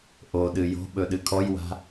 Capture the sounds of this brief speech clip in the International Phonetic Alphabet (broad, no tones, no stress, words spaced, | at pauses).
ʔoɗɨ jo̤ɓɵ ɗɨkʰɔjwa̤